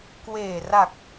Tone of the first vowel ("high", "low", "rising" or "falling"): low